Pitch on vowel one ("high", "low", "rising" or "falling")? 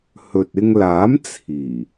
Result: low